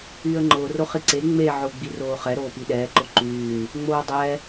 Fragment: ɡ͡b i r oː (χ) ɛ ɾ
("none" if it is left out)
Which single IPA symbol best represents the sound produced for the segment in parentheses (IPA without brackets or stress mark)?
χ